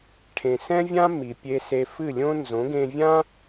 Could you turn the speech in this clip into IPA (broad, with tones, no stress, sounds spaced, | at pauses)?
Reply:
ʈʰ ẽ˩ s ɛ̃˥ vʲ ã˥ m i˩ pʲ e˧ s e˧ f ɨ˥˩ lʲ õ˥ n z õ˩˥ ɡ ẽ˧ vʲ ã˥